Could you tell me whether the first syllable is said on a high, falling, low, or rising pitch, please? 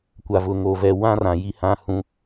low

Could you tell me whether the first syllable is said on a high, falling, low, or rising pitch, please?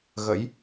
rising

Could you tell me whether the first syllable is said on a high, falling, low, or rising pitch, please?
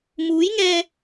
rising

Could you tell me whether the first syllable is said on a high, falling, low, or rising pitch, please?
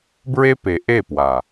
high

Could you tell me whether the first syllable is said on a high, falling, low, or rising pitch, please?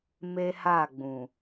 high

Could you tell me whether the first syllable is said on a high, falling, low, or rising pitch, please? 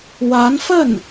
rising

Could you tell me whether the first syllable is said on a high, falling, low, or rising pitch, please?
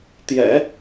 low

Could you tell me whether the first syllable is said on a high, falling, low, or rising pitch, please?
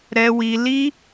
high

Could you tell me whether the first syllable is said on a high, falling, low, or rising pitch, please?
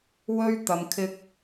high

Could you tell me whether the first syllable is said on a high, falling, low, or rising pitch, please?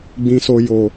low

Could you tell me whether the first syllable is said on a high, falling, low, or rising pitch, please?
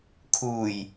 low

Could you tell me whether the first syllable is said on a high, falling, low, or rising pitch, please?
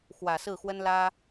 low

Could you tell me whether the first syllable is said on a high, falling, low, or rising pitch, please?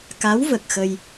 rising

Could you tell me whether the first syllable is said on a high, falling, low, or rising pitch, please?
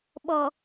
low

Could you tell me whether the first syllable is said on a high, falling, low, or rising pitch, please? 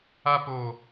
high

